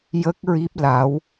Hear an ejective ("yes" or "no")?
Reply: no